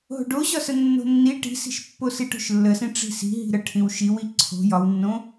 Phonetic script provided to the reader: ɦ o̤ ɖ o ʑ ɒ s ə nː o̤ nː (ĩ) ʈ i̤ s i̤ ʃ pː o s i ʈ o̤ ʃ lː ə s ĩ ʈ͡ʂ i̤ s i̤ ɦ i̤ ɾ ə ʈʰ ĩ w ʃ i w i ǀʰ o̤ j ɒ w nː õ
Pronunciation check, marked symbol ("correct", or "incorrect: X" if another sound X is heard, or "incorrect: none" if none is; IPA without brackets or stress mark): incorrect: i